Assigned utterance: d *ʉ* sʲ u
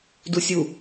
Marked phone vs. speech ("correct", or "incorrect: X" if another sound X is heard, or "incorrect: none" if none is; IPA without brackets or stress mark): incorrect: u